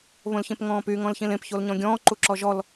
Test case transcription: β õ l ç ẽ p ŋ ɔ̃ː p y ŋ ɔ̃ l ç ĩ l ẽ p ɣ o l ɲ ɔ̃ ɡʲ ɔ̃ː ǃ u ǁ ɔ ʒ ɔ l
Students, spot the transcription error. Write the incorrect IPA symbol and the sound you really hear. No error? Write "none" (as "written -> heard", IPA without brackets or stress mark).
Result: ɣ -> ç